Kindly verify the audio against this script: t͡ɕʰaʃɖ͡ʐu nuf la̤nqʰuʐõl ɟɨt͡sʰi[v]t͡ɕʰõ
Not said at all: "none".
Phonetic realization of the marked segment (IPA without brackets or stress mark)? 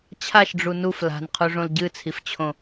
f